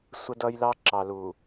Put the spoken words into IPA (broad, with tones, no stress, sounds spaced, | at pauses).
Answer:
sʷ ə˦ d ʌ˦ j l ɑ˦ ǁ ɑ˨ l u˨